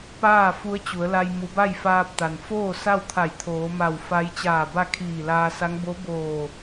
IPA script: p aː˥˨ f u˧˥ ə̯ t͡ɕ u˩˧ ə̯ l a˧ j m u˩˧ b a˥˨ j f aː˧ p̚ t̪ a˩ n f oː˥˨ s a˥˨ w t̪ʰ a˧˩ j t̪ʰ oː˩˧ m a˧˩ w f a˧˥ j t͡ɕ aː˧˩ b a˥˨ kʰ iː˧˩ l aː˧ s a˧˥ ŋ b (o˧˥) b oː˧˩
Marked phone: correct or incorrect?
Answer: correct